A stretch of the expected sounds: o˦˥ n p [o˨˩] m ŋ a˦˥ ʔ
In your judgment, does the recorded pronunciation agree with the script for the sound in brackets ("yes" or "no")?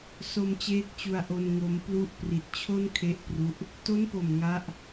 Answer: yes